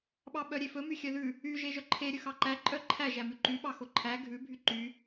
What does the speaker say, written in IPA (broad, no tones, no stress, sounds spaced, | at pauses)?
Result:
ɓ ɑ ɓ œ ɾʲ e f ɵ m y xʲ œ ð ʉ | y ʒ e ʒ œ ǃʰ e ɾʲ ɵ x ɑ ǃ æ ǃʼ œ ǃʰ æ ʒ æ m ʉ ǃ y ɓ ɑ x o ǃʰ æ ɡʱ ʉ bʱ y ǃ y